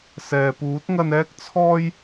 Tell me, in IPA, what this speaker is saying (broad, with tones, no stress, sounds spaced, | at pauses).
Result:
s ɛː˨ p uː˨˥ t̚ ŋ ɐ˧ n ɛː˥ k̚ t͡sʰ ɔː˥ j